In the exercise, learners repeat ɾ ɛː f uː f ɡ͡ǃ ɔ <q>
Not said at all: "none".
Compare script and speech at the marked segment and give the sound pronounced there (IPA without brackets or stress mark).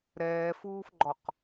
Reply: q